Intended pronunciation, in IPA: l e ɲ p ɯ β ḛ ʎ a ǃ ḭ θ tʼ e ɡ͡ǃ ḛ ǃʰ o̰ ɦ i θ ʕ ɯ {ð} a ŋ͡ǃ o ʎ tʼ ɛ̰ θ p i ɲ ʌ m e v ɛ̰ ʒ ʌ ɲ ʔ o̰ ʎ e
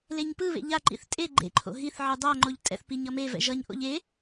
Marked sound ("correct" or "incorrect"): incorrect